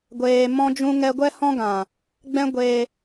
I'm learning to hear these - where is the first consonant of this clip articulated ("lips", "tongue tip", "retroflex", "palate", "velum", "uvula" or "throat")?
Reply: velum